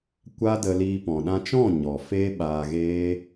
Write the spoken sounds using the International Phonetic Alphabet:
kʷa˦də˧liː˧ pɔ̃˨ɗã˧t͡ʃɔ̃˦˨ ɲɔ˨ feː˦ɓaː˧ɣeː˦

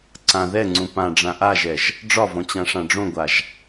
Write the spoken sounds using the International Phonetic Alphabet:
ǀã ðɛŋ͡ǀũ pã ɖ͡ʐãʔaʒɛʒ | ɖ͡ʐɒvɔ̃ t͡ɕãʂãɖ͡ʐõɡʷaʒ

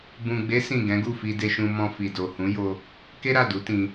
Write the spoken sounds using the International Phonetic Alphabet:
bũ˨ɡ͡be˨˦ sĩ˦˨ ɡɛ̃˨˦ɡu˦˨fi˧de˧ ʃũ˧mɔ̃˧fi˨ do˨hũ˨˦jo˧ | ke˦ɾa˦˨ du˨˦tĩ˧

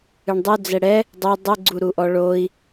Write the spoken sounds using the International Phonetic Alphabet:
ɨɳdˤu d͡zɛɽɛ | dˤu dˤɨɡ͡ǀuɾuʔɔ ɭoi̯

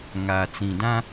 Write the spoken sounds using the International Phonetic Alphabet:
ŋaː˨t͡sĩ˨dã˦

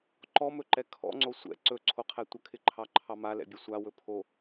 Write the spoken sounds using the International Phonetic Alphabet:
ǃɔmɵǃɛ kʰɔ̰ŋ͡ǀo sʷɛ̰ ǀɵǀʰoqʰɛ tʷəkʰɪǃʰɑǃʰɑ malɛ̰bʲɵ sʷawɵ pʰo

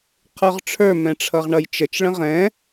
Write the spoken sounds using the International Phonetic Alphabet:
qʰə˞ʁʈ͡ʂʰə˞ mɛ̃ʈ͡ʂʰʌʁɳʌjt͡ʃət͡ʃ ɭə̃ʁɛ̃

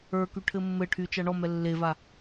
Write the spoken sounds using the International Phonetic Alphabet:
ə˞ky ʈʰɘmːɘʈʰy t͡ʃaɳɔmɛ lːeva

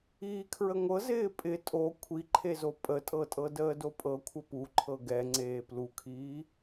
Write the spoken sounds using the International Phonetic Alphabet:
iːkʰɹəŋʷɤz ɪːpʼɪ tʼo kʷʰiǃʰezo pʼətʼɤtʼɤ dəːdopʼɤ kʷʰəpuǃʰɤ ɡɛ ŋ͡ǀeːplukʰiː

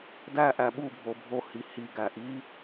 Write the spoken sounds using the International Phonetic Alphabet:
dæ ʔæɓubʱo bʱohi hiɡæ ʔi

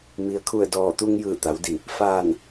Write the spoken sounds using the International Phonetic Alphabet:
mi˩ə̯kʰu˧˩ə̯ dɔː˧˩t̪u˧ŋ jɯː˧˩t̪a˩˧wdi˧˩ | faː˧˩n

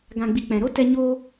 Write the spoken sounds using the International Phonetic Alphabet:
ɡã˨ɡ͡bi˨ k͡pɛ̃˨ɾo˦tɛ˧ ɲoː˧

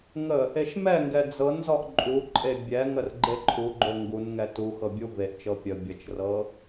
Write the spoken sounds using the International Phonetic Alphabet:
ŋə | eʃmɛŋɡɛ d͡zɤn zɔʔǃʼuǃʼe bʲɛŋər ɡ͡ǃeǃʰuɡ͡ǃo ŋɡun ŋɛtuxɤ bʲuveʔt͡ʃɤ pʲə bʲət͡ʃrɤ

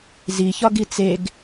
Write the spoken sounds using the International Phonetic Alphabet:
ziçɒɡi t͡seɡ

